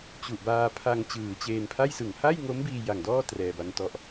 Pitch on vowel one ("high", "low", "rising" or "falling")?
low